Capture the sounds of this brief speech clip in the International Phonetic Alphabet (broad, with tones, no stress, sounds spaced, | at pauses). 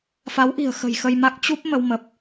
f a˨˦ w ʔ i̤˨˩ ə̯ x ə̤˨˩ j x ə˧ j m a˦˥ k̚ t͡ɕ u˦˥ p̚ m ə˧ w m ə˨˩ p̚